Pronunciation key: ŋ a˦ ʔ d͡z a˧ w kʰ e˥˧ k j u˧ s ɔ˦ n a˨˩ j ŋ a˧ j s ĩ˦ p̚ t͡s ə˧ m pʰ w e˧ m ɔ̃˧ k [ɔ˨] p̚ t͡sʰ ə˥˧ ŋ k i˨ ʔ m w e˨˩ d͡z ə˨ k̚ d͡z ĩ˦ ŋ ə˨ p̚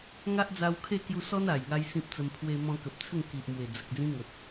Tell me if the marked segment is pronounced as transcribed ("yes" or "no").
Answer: no